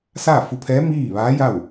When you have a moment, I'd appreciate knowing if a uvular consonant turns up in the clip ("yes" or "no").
no